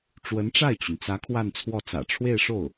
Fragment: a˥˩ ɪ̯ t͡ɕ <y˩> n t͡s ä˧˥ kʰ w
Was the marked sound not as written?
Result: no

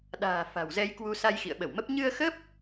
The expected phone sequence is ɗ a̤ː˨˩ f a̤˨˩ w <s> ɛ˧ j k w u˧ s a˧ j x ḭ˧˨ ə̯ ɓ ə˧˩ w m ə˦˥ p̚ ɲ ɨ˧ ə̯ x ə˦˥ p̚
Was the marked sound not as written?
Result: yes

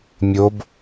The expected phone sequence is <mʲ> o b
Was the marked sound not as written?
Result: no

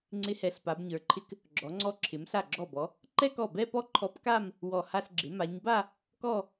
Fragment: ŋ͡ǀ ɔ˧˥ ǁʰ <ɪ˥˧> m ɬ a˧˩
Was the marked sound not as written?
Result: yes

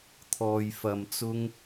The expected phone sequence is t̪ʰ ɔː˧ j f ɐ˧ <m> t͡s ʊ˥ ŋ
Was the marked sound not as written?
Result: no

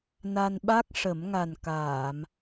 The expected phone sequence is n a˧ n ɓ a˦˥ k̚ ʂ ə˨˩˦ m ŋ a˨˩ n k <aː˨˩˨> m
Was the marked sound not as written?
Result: no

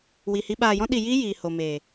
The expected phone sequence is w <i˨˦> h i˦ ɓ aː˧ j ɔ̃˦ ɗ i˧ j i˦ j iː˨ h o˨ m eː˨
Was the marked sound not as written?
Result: yes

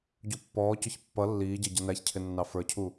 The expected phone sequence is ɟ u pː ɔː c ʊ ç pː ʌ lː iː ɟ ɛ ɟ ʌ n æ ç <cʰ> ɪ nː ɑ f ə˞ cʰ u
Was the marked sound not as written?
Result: no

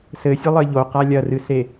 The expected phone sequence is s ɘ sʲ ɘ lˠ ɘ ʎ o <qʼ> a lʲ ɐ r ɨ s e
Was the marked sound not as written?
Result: yes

